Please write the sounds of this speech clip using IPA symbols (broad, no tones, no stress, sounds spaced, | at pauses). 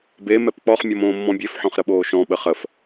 b e m ɛ p k͡p ɔ χ mʲ ɔ m õː mː ɔ̃ bʲ e f ħ ɔ̃ χ ɾ ə ɓ oː ʃ ɔ̃ ɓ ə χ ə f